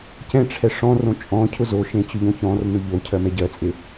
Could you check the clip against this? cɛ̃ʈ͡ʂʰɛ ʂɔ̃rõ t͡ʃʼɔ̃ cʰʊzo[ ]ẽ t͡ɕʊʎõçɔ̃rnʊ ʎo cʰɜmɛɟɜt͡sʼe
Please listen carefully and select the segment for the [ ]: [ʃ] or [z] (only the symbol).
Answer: ʃ